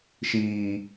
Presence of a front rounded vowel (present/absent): absent